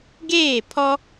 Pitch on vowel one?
falling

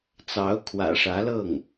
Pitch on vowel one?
rising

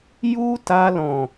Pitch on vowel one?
high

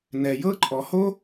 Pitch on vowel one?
low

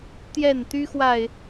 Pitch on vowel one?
falling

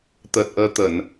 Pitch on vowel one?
low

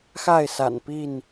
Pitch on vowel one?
falling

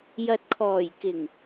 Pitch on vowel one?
low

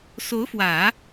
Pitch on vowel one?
rising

